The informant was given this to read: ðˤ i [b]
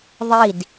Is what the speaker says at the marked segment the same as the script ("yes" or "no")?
no